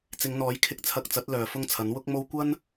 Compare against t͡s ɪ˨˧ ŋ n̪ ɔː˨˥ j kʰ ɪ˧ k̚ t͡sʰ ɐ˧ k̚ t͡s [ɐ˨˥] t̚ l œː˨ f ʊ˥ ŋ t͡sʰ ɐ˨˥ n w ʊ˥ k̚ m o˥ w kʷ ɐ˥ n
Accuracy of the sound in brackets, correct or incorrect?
correct